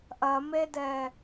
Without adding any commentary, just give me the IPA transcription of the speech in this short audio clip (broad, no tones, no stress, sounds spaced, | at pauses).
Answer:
ʔ ɐ m e d ɛ